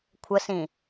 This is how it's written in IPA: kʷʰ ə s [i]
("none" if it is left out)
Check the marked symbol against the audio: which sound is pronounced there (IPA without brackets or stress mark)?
ĩ